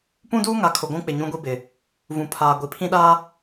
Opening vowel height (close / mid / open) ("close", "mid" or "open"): close